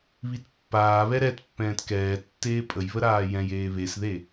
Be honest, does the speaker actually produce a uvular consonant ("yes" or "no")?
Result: no